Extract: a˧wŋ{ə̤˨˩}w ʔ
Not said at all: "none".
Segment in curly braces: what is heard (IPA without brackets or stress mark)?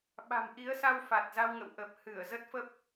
ə̰˧˨